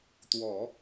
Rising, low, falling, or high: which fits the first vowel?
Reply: low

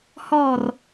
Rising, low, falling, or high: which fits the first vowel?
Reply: falling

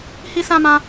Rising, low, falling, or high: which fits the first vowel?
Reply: high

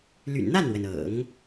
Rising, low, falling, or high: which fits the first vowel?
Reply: low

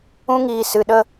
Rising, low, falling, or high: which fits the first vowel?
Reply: high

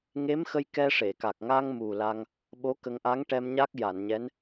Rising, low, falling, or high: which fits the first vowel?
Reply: rising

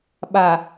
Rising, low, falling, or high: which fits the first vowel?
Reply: low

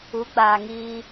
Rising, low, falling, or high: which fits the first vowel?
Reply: rising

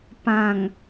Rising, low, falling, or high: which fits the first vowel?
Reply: low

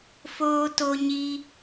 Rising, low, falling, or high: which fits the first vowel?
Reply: high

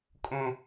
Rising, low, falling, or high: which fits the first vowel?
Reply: high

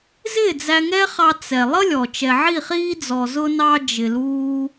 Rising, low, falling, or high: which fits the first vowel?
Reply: falling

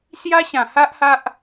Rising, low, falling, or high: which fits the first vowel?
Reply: high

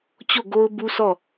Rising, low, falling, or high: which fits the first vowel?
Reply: falling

